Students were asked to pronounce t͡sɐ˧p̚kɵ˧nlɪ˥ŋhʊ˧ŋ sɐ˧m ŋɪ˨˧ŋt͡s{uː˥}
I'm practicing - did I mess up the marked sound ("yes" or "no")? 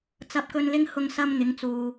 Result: yes